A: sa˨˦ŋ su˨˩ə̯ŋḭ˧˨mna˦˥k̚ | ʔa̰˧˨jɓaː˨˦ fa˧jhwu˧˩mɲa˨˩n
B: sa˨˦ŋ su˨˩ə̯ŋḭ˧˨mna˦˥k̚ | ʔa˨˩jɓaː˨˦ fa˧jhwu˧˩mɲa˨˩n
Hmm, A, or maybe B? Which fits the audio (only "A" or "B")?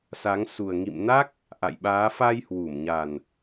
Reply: A